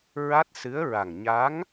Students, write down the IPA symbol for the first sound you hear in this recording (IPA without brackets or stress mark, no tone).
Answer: ɹ